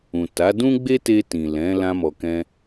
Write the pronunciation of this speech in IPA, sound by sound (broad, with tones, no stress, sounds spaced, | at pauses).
ũ˨ t a˨˦ d ũ˦ ɡ͡b e˦ t e˧ t ĩ˨ l ɛ̃˨˦ l ã˧ m ɔ˨ k ɛ̃˧